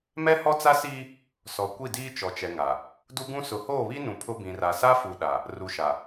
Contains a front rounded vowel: no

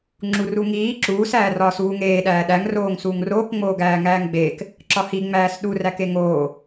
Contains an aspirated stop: no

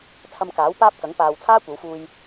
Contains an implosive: no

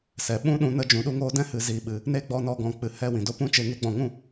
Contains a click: no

